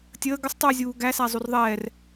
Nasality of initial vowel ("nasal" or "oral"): oral